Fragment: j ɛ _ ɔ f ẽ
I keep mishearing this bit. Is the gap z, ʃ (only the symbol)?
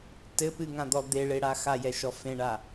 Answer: ʃ